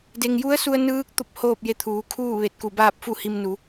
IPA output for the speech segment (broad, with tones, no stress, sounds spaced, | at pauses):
d e˩ ŋ j u˧˥ ə̯ s u˧ ə̯ n ɯː˧˥ k̚ t̪ o˥˨ p̚ h oː˥˨ p̚ j e˧ t̪ʰ uː˩˧ kʰ uː˥˨ ʋ e˧˩ t̚ k u˧˩ b aː˥˨ p̚ f u˥˨ h i˧ m n u˩˧